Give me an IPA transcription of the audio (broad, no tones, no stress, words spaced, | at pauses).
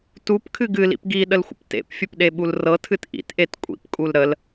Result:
tupkʰɨ ɡɨlḭp ɡiɗəlxʷə̰p tḛpfʲəpɗeɓul rɤtʰɨt ʔḭtʔet kʷʼḭpkʼul ɾəl